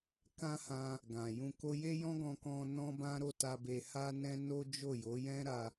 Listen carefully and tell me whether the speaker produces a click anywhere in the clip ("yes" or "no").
no